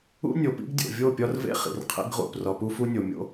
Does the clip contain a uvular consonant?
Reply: yes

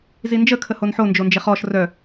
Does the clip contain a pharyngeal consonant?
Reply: yes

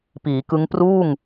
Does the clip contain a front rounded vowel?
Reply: no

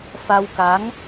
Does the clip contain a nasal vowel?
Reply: no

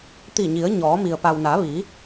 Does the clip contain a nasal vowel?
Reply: no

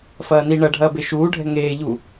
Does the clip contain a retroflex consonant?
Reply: yes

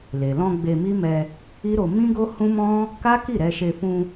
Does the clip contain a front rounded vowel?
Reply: no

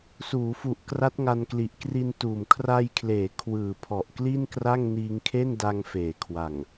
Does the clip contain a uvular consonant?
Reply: no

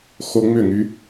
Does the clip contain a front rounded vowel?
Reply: yes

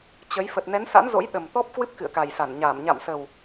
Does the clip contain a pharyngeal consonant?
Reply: no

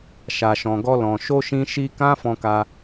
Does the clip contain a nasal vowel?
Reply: yes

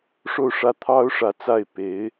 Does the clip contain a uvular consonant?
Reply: no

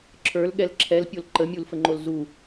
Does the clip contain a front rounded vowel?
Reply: no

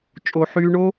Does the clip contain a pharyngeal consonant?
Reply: yes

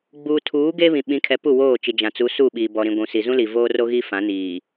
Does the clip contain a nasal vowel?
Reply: yes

